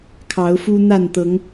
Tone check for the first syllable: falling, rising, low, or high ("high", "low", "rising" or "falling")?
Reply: rising